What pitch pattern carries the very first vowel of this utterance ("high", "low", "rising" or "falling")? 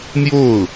falling